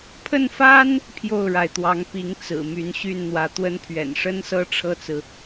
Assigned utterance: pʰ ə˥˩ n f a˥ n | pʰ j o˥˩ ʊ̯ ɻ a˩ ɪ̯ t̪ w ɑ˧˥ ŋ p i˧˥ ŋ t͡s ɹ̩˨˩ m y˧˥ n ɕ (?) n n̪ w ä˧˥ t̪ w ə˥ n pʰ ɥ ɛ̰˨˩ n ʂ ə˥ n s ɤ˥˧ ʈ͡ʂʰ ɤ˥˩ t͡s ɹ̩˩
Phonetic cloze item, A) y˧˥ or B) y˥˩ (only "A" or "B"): B